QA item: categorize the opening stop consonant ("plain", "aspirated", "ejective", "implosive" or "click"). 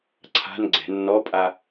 click